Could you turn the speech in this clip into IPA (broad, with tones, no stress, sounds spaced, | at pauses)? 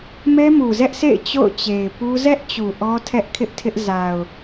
m ɛ˦ m u˨ z ɛ˦ ʔ sʰ ḛ˦˨ ɪ̯ t͡ɕ o̰˦˨ ʊ̯ t͡ɕ e˨ ɪ̯ p u˦ z ɛ˦ ʔ t͡ɕ u˨ ʔ ɔ˦ tʰ ɛ˦ ʔ kʰ ɪ˦ ʔ tʰ ɪ˦ ʔ z a˨ ʊ̯